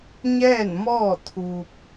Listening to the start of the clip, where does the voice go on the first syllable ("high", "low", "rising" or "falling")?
falling